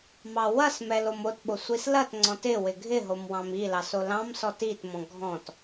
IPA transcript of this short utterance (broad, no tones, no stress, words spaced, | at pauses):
mɑwɐsmɛl omotɓo sʷislɐtŋ͡ǀɔ̃t ɪ wɪɡʱɪɦom wɑ̃milɑs olɑ̃msɔt itmɔ̃ ɡʱɔ̃t